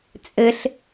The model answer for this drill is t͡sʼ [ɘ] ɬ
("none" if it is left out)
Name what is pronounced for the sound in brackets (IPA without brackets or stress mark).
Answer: ɘ